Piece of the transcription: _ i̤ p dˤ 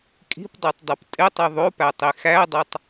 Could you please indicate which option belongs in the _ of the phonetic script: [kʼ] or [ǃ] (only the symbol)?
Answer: kʼ